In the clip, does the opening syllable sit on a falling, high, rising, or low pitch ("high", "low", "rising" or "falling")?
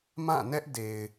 falling